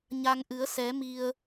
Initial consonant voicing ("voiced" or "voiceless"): voiced